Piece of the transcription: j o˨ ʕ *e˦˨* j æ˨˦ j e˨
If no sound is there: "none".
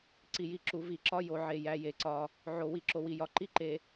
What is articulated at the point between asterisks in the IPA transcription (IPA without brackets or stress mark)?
e˨